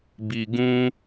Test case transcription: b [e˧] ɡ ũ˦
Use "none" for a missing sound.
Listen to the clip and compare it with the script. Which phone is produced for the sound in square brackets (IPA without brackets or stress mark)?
i˧